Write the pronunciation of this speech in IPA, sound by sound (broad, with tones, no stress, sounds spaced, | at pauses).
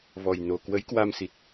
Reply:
v ɔ˨˩ j n o˨˩ k w ə˨˦ j k w a˧ m s i˨˩ t̚